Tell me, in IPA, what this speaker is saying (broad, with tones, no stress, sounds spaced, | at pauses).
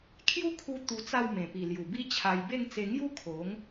kʰ j u˦ kʰ u˧ t̪ u˧ t͡s a˥˧ w m ẽ˨˩ p i˨˩ l j u˨˩ b i˥˧ t͡ɕʰ a˧ j b e˥˧ ŋ t͡s e˧ ŋ j u˦ kʰ o˨˦ ŋ